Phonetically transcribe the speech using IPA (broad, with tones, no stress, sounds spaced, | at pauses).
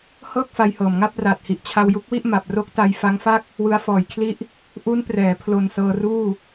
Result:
h ɤː˥˩ k̚ f a˧ j h ɤː˨˩ m ŋ a˥˩ p̚ r aː˨˩ t̚ h i˨˩ ʔ t͡ɕʰ a˧ w j u˦˥ k̚ w i˥˩ ʔ m a˨˩ p̚ r o˦˥ k̚ t a˧ j f a˦˥ ŋ f a˥˩ k̚ | w ɯ˧ a̯ f ɔː˨˩ j kʰ l i˦˥ ʔ | ʔ u˦˥ n p r ɛː˩˦ pʰ l o˨˩ n s ɤː˧ r uː˥˩